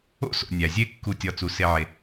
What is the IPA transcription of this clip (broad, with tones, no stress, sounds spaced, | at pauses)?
o̰˦ s o̰˩ nʲ æ˩ zʲ e˦ kː u˨ tʲ ɒ˨ t͡s u˩ s e˨ ʕ e˩